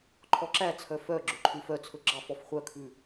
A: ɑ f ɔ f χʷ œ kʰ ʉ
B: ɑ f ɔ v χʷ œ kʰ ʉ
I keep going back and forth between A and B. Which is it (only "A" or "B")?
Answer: A